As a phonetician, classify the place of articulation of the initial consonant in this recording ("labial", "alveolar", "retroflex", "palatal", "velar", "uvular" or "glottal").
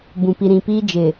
labial